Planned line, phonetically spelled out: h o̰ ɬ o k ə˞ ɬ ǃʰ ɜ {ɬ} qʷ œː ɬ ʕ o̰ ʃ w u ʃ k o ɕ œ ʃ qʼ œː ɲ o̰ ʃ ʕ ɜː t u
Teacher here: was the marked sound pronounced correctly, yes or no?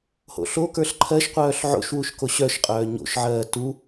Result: no